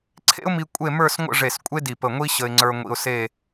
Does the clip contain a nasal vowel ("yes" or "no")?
no